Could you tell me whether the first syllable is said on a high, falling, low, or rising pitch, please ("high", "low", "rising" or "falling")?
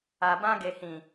low